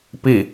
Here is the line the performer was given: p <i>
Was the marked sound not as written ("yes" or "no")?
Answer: no